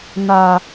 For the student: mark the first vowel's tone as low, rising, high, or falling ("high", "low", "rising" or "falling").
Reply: low